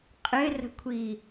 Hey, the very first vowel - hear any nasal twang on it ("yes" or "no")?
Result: no